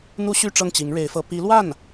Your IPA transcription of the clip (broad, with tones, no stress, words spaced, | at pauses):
n̪u˥ɕy˥˧ ʈ͡ʂɤ˥˩ŋt͡ɕi˧˥ŋɻe˧˥ɪ̯fɤ˧˥ pi˧˥lwa˥˩n